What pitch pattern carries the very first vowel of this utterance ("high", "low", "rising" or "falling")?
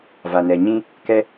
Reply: low